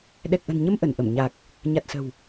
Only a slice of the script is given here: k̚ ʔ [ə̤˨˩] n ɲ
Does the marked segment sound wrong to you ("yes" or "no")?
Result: no